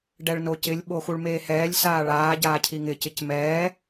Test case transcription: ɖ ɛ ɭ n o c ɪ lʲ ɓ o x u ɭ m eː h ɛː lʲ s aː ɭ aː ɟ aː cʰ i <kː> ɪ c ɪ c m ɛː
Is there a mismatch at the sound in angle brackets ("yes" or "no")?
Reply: yes